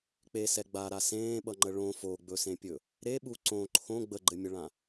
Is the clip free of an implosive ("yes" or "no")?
no